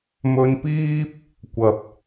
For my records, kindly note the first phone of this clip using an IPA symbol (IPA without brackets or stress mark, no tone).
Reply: m